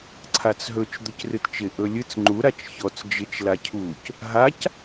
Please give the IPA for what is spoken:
ǀʰat͡sɦɵt͡ʃ d̪ɵcrɨtt͡ʃɪ ʔɵlʲɨt͡s ŋ͡ǃu ɾat͡ʃçɔt͡s d͡ʒɪt͡ʃ lacʰuc | ɦac

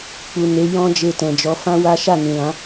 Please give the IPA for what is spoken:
k͡pu˨ ne˨˦ jɔ̃˦d͡ʒe˧tɛ̃˨d͡ʒɔ˨˦ fã˦ wa˦ ʃa˦˨nĩ˨lã˨˦

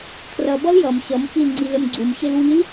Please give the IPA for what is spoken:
kʰrʌbʌl jʌm ɕʌmfil ŋ͡ǀilɘmɡ͡ǀumɕɘl wil

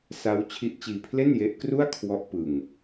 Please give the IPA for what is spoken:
sa˦˥w t͡ɕʰi˦˥ʔt͡ɕiː˧pʰle˥˩nje˦˥ʔ kru˥˩a̯kʰwɔ˦˥ʔ pɯ˧ŋ

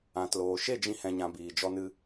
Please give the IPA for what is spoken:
ã˨tloː˨ʃe˦˨ d͡ʒĩ˧hɛ̃˨ɲã˨ biː˨d͡ʒɔ˧nɨ˧

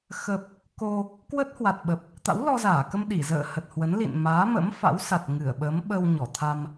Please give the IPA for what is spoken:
xə˨˩p̚ | ko˧ | kwə˦˥t̚hwa˨˩t̚ɓə˨˩p̚ | t̪a̰˧˥wlɔ˧zaː˧˩kə˧m ɗi˧˩ zə̰ː˧˨hə˨˩t̚hwə˨˦nlḭ˧˨n maː˨˦mə̰˧˥mfa̰˧˥wsa˨˩t̚ ŋɨ˧˩ə̯ɓə˨˦m ɓə˧wɲɔ˧˩t̪ʰa˧m

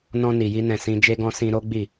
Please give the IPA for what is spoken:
nɔ̃˧ni˨ji˧nɛ̃˨ sĩ˧ d͡ʒe˧ɡɔ̃˧ sĩ˧ ɾo˦ɡ͡bi˦˨

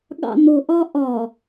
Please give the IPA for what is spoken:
ɠɑ̰nʊʔɒ ʔɒ

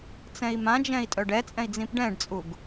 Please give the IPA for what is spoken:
t͡sɛ̃i̯mãd͡ʒɛ̃i̯ tʼœɖɛt͡sʼɛ̃i̯ d͡zĩpɖɛ̃ɖt͡sʼuɡ

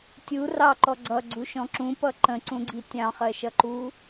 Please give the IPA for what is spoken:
tʲu rɑǃɔ ɡ͡ǀʌɡ͡ǀuʃɔ̃ ǁũpʌ ǃə̃ǀũɡ͡ǀi tʲɑ̃χɜʃʌǃu

